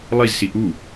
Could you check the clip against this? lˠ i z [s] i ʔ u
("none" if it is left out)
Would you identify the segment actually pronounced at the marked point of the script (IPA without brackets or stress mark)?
s